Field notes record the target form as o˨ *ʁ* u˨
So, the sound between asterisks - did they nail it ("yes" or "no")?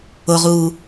yes